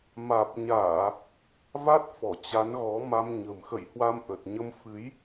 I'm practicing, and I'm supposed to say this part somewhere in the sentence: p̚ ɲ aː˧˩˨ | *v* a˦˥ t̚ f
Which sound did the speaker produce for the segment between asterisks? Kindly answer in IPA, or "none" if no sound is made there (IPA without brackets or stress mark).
v